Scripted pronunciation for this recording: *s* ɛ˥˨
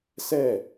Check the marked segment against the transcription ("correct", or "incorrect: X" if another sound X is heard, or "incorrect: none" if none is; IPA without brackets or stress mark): correct